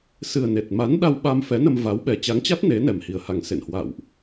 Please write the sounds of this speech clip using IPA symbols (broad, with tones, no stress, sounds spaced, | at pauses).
s ɨ˨˩ ə̯ n e˨˩ t̚ m a˨˦ n ɗ a˧ w ɓ a˧ m f ɛ˨˦ n ə˧ m v a˨˦ w ɓ ɛ˨˩ t͡ɕ a˨˦ ŋ t͡ɕ a˦˥ t̚ n e˨˦ n ɛ˨˩ m h i˨˩ ə̯ h a˨˩ ŋ s ḛ˧˨ n h w a̰˧˨ w ʔ